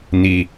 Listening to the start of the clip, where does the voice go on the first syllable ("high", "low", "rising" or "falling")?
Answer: low